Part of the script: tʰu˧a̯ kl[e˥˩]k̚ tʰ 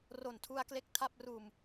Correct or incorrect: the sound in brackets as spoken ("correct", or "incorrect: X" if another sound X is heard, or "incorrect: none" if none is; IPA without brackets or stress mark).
incorrect: e˦˥